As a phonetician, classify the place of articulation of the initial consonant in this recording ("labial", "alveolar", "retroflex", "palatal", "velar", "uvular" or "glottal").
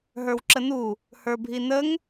glottal